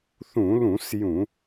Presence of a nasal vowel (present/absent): present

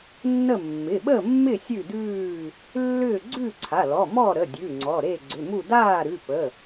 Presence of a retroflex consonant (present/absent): absent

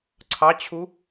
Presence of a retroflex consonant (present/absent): absent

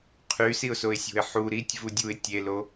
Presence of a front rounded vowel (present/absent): present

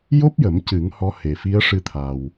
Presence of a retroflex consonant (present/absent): present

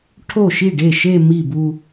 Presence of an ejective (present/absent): absent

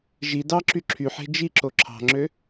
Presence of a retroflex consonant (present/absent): absent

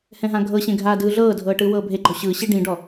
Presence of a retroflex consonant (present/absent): present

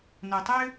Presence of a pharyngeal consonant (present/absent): absent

